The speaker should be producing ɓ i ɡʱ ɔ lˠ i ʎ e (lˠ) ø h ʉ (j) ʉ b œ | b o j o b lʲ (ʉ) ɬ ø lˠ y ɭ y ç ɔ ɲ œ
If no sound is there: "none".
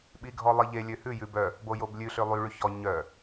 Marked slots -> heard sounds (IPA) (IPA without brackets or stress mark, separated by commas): lʲ, j, ʉ